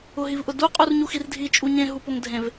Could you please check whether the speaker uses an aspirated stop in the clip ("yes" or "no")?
no